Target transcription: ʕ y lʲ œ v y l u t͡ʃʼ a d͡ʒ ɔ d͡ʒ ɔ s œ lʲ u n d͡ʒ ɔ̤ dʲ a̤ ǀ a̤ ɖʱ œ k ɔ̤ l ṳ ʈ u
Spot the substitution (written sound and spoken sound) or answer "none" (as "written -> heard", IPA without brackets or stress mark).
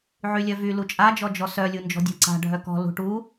none